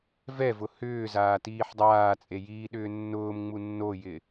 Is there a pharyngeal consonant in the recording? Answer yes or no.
yes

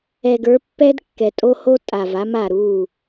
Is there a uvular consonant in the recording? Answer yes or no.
no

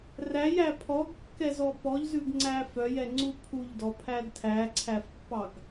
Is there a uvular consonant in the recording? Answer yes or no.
no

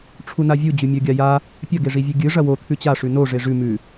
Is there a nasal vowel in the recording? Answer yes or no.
no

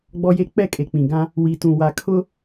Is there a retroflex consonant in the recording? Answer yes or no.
no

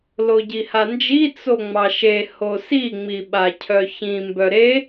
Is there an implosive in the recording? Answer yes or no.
yes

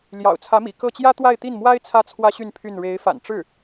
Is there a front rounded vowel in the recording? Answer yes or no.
yes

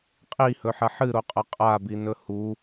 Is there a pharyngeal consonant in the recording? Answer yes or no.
yes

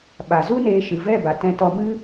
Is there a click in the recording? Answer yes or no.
no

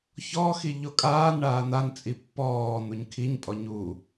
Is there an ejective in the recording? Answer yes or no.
yes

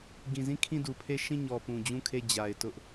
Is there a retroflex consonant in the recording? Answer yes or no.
no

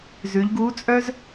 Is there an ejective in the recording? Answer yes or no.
yes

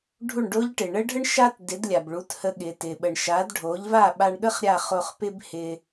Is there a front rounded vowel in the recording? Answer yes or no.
no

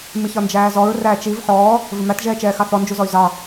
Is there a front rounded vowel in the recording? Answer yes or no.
yes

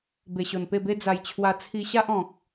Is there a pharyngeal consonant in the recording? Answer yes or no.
no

